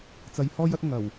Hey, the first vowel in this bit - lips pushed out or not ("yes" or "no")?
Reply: no